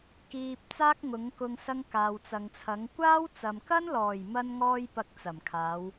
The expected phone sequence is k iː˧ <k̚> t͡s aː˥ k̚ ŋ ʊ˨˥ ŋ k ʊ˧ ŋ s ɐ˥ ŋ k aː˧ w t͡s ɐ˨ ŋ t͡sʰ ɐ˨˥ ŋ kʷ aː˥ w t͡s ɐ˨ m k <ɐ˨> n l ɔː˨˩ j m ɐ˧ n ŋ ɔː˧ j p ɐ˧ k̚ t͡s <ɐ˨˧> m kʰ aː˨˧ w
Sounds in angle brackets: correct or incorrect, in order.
incorrect, incorrect, incorrect

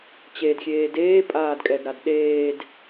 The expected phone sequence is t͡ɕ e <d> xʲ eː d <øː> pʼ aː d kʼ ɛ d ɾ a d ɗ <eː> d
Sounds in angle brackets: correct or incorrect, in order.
correct, incorrect, correct

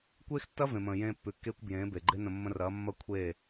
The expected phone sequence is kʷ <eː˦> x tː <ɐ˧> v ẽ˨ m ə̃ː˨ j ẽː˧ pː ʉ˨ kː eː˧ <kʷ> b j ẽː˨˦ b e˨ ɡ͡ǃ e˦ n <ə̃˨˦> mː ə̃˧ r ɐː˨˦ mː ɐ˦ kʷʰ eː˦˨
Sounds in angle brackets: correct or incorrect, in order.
correct, incorrect, correct, incorrect

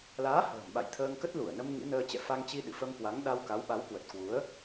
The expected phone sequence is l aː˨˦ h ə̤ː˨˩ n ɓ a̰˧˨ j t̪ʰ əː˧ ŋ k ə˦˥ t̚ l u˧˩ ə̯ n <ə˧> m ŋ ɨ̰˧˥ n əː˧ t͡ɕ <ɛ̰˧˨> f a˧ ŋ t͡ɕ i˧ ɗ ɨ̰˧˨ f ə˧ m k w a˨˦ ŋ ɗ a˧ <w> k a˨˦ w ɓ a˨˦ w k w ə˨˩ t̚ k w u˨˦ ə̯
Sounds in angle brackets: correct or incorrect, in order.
correct, correct, correct

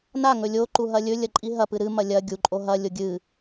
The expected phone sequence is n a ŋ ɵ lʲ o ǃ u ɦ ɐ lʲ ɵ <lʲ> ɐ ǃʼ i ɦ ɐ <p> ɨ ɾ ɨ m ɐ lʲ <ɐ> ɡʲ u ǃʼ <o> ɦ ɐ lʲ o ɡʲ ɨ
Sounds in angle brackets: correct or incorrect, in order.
correct, correct, correct, correct

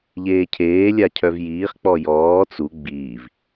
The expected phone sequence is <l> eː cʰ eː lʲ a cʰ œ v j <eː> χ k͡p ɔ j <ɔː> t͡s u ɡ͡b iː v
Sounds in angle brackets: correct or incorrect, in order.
incorrect, incorrect, correct

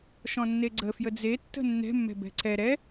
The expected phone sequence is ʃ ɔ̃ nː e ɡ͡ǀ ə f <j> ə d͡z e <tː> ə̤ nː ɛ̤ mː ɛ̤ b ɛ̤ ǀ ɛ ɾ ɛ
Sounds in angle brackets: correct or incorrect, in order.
correct, correct

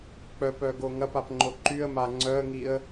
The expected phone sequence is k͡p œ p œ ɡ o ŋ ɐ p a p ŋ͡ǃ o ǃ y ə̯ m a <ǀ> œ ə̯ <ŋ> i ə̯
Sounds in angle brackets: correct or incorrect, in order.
incorrect, correct

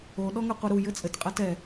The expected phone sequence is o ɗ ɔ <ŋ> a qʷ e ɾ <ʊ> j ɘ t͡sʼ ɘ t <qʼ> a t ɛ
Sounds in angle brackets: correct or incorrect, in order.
correct, incorrect, correct

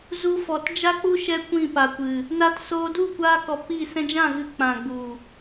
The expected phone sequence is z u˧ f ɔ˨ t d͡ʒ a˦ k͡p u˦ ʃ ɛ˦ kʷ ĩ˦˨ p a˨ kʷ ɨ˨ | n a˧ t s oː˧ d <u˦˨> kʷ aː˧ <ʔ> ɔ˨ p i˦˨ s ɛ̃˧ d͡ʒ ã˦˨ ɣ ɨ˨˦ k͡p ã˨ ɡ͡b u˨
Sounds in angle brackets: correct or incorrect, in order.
correct, incorrect

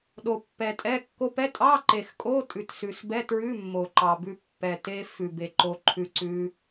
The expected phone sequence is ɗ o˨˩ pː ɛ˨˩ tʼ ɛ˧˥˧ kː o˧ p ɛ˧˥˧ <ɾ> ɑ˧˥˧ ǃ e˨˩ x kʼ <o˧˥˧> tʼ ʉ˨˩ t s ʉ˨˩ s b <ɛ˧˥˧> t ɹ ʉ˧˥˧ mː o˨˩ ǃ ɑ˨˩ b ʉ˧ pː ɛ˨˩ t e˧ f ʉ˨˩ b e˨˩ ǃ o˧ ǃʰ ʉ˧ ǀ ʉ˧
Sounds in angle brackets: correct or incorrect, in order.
incorrect, correct, correct

